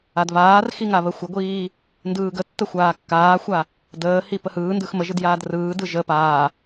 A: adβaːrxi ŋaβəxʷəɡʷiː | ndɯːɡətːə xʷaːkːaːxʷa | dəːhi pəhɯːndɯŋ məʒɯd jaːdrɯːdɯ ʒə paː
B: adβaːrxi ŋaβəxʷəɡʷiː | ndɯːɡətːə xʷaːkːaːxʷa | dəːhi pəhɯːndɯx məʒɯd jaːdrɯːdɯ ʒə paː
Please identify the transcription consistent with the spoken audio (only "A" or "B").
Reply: B